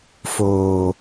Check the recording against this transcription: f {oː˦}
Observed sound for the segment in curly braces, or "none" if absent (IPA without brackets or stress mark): oː˨